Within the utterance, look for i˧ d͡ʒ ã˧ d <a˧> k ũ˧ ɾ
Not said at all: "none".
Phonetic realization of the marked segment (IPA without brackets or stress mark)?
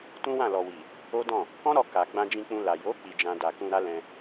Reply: a˨